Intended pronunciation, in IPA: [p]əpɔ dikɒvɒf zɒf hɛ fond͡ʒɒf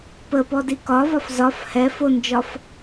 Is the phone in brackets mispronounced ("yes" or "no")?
no